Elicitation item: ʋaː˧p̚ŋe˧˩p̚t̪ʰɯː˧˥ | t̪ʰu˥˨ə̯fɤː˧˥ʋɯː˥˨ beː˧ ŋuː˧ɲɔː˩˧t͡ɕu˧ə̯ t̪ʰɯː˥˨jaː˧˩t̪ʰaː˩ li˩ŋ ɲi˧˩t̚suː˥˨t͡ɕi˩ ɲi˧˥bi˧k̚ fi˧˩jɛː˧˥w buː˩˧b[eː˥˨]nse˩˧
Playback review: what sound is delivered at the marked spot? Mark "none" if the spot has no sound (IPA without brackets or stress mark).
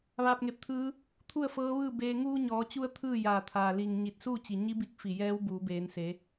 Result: eː˩˧